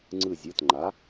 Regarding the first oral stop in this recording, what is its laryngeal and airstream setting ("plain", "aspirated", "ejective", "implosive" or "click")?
click